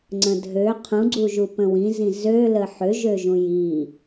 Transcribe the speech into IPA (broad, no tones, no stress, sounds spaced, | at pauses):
ŋ͡ǀ ə̃ dʱ ø qʰ ũ ɡ͡ǀ u ʒ u p ə̃ w ĩ z ĩ z ø l ə ħ ø ʒ ø ʒ ũ j i